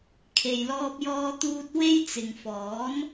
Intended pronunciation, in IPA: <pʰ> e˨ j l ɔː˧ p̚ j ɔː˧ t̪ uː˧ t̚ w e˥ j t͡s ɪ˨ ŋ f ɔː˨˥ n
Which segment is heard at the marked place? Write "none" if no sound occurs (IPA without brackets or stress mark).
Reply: kʰ